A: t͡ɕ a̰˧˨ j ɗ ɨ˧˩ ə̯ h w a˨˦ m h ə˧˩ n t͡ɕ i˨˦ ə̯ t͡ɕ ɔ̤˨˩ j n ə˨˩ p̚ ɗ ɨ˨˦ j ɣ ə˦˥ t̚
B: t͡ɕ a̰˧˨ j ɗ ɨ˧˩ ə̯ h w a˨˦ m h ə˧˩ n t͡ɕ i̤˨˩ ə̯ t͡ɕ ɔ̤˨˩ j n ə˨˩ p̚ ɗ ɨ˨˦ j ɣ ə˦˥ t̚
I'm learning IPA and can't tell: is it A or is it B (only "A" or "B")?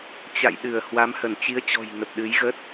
A